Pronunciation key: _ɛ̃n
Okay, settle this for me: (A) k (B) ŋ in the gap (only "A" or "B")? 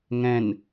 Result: B